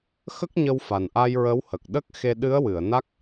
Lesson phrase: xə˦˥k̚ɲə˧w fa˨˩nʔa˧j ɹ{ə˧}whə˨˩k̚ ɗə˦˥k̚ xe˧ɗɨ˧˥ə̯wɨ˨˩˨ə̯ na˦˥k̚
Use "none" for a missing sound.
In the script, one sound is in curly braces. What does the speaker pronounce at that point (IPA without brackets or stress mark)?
ə˧˥